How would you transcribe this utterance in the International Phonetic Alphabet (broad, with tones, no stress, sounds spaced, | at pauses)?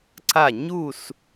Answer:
ǀ a˧˩ ɲ u˧˩ s